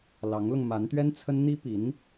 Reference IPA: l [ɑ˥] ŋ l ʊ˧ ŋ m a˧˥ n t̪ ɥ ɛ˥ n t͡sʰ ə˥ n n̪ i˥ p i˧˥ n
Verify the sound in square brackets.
incorrect: ɑ˧˥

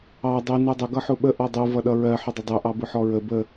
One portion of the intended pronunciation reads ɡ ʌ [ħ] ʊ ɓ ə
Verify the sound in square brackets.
correct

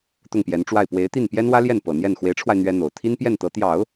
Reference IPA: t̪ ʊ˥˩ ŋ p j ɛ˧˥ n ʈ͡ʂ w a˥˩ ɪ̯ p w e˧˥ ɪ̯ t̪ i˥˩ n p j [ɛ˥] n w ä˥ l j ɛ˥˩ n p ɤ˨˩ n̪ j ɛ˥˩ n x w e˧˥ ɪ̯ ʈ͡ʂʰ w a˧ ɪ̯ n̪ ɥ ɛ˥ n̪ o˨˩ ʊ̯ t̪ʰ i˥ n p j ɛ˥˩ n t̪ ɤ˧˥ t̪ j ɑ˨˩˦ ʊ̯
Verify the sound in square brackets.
correct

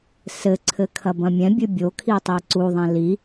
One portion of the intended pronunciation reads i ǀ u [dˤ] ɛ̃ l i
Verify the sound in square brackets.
incorrect: ðˤ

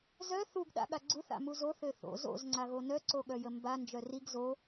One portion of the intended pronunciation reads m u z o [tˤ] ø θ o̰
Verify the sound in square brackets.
incorrect: θ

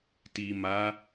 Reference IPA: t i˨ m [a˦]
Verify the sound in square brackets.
incorrect: a˨˦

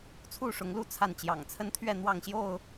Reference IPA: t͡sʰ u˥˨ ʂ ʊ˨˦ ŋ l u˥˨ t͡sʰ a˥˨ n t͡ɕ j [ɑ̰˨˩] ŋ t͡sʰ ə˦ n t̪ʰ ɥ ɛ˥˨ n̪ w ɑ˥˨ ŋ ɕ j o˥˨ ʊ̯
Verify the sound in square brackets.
correct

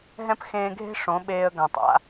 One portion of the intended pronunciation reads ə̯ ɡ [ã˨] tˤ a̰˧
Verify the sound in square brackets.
correct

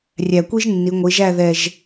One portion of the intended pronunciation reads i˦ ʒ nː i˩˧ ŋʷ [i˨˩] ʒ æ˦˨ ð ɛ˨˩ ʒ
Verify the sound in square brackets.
incorrect: i˩˧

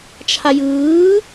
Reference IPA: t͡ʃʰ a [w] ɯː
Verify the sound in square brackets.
incorrect: j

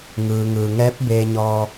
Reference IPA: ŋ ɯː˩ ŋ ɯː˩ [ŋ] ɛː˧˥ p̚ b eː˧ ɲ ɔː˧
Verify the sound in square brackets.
correct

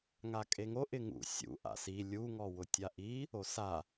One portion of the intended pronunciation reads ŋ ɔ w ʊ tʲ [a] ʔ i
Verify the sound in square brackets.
correct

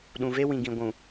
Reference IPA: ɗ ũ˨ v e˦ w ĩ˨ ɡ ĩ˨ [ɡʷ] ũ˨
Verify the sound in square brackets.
correct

